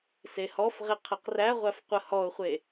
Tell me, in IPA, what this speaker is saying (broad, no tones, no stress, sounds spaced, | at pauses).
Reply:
s e h ɔ f ʁ ɪ qʰ ə q r æ ʁʷ æ f qʷ ə h ɔ ʊ̯ χʷ e